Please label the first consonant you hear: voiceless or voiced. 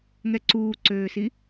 voiced